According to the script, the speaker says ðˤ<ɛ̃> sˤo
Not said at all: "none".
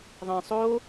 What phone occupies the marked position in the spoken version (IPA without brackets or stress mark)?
ɛ̃